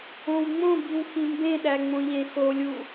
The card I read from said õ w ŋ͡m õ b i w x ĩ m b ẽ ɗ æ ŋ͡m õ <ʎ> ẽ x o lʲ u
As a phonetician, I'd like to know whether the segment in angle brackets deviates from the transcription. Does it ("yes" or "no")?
no